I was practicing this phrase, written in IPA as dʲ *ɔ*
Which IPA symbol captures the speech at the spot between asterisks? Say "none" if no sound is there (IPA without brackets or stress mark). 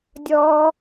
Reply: ɔː